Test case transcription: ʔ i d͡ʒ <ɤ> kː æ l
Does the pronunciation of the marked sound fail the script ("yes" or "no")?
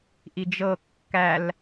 no